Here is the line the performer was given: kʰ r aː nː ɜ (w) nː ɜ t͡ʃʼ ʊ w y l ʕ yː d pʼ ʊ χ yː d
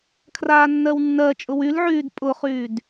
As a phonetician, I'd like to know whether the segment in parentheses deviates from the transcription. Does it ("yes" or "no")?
no